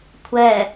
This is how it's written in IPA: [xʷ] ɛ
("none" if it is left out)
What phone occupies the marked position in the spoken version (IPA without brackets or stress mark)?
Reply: kʷʰ